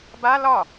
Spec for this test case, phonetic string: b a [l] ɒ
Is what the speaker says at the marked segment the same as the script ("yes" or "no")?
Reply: yes